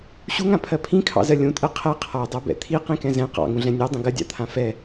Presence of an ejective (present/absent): present